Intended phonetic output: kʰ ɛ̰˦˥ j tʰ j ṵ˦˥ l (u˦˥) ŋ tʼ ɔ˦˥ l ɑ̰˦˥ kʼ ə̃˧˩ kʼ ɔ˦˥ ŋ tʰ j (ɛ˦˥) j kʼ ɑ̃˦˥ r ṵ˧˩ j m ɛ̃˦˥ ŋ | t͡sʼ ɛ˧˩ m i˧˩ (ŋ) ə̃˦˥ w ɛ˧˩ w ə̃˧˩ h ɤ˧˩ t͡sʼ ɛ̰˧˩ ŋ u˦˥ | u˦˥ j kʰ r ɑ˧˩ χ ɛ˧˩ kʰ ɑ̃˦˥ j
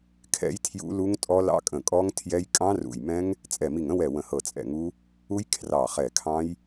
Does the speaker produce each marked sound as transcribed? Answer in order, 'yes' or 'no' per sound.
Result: yes, yes, yes

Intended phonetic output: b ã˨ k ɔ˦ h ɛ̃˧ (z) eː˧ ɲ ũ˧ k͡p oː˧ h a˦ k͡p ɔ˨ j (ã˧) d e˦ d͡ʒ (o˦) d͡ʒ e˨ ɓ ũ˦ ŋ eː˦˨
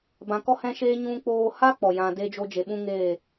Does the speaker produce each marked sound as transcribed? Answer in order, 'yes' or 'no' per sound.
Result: no, yes, yes

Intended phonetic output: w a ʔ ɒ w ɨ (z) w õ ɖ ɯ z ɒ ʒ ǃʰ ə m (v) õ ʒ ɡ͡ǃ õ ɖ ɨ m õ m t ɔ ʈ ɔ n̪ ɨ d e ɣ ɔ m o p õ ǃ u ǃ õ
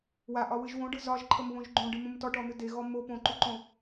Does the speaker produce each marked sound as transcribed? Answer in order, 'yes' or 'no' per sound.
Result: no, no

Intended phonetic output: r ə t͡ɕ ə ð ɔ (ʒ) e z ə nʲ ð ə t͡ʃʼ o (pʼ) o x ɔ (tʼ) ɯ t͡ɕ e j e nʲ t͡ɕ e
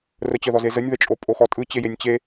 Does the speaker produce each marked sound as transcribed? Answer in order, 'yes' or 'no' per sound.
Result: no, yes, yes

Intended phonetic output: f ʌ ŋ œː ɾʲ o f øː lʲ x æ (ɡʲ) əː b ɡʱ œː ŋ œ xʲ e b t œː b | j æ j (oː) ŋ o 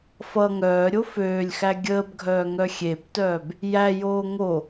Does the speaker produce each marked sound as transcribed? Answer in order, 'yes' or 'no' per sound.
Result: yes, yes

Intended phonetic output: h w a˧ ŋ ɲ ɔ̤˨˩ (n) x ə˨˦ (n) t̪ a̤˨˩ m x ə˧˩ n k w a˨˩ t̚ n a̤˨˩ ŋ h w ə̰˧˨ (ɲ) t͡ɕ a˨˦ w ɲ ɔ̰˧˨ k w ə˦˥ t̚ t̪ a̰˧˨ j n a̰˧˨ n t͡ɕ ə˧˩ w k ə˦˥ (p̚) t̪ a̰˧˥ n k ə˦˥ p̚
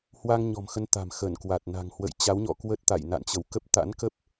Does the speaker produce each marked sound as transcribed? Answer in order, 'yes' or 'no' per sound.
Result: no, yes, no, yes

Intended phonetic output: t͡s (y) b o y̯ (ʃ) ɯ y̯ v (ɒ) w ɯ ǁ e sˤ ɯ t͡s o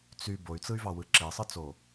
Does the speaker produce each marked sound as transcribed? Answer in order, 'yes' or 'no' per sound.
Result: yes, no, no

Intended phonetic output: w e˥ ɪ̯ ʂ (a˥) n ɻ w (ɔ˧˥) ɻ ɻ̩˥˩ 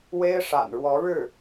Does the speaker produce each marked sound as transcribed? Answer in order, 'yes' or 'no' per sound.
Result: no, yes

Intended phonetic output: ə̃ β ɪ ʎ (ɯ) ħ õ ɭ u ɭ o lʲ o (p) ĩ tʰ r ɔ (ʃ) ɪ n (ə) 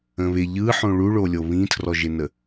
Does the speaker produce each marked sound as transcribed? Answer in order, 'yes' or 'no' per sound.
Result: yes, no, no, yes

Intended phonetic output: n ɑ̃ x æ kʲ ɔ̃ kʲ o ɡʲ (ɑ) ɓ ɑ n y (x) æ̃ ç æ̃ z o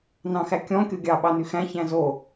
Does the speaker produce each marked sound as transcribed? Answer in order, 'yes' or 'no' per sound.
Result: yes, yes

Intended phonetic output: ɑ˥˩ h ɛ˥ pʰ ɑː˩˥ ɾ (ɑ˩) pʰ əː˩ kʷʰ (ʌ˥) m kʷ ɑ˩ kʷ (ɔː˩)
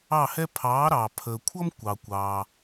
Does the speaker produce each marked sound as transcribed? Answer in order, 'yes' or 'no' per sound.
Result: yes, yes, no

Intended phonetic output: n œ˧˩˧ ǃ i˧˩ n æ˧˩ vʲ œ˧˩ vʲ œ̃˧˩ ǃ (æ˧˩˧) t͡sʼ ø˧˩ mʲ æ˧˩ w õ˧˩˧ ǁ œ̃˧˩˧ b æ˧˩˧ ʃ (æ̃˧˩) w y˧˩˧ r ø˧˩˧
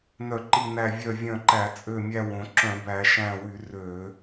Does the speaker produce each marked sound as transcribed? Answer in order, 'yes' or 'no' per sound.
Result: yes, yes

